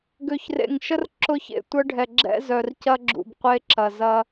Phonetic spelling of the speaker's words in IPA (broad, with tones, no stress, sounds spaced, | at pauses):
ɡ ø˨ ç r ḛ˨ ŋ ʃ ə˦ r ǁ ʊ˦ ç ḛ˨ tʷ ə˦ ɖʱ ɛ˨ ɡ͡ǁ ɛ̰˦ z œ˨ r c ɐ˦ ɡ͡ǁ ṵ˨ b qʷ e˦ ǁ ɐ˨ z ɐ˦